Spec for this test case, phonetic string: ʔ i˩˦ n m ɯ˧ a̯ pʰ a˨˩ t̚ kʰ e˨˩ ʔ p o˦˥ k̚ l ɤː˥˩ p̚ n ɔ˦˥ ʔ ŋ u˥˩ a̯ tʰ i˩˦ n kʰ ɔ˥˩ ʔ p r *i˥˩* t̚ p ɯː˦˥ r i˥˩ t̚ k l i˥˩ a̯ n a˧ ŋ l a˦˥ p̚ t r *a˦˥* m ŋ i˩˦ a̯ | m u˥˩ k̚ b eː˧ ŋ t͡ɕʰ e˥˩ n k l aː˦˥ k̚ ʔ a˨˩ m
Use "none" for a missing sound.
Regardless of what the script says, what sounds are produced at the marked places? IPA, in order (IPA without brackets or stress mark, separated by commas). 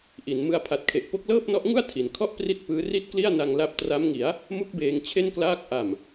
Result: i˥˩, a˦˥